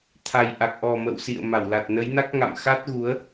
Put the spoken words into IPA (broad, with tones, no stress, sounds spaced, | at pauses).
t̪ʰ a˨˩ j ʔ a˨˩ k̚ ʔ ɔ˨˩ m ə̰˧˨ w s ḭ˧˨ ə̯ m a˧˩ w l a˨˩ t̚ n ə˨˦ j n a˦˥ k̚ ŋ a̰˧˨ m x a˦˥ t̚ ɣ u˨˦ ə̯